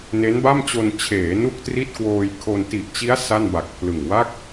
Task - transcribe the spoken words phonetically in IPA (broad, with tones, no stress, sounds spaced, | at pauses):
n e˦˥ n b a˥˩ m t͡ɕ o˧ n t͡ɕʰ eː˩˦ n u˥˩ k̚ t r i˥˩ t̚ k w oː˧ j kʰ o˧ n t i˨˩ ʔ t͡ɕ i˦˥ a̯ s a˥˩ n b a˨˩ k̚ pʰ l ɯ˨˩ ŋ w a˥˩ k̚